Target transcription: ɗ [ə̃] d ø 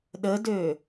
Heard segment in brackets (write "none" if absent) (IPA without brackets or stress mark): ə